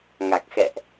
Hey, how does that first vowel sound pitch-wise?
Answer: low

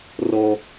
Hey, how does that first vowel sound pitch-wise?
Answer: high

